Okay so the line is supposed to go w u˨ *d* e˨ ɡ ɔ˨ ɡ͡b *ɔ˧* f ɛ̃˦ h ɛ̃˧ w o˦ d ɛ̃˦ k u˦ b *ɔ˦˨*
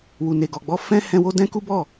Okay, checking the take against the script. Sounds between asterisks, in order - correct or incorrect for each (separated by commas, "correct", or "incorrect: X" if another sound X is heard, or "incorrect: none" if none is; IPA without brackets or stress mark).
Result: incorrect: n, correct, correct